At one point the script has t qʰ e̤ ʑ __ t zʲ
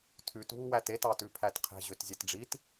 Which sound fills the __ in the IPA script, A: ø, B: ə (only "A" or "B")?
A